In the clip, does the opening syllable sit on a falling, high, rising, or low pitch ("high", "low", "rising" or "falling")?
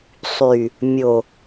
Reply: low